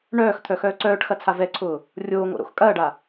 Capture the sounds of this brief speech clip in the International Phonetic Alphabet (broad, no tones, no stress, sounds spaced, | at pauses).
ɳ œː x t̪ʰ œ x œː ǀ œː ʈ x ɐ t͡sʰ a v ɛ ǀʰ ʊː | rʲ oː ŋ o̰ ɾ o̰ x kʼ ɐː ɖ a